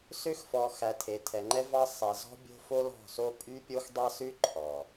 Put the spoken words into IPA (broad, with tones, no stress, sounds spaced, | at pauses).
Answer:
s ø˦ x f ɔ˨ x æ˨ tʰ e˨ tʰ ɛ˨ ŋ͡ǃ ɛ˦ v ɑ˦ sˤ ɛ˨ z ɔ̤˦ bʲ o̤˦ f o˦ l ɔ̤˦˨ s o˦ pʼ y˦ pʲ o˦ x dˤ ɑ˦ s ʉ˦ ǃʰ ɔ˨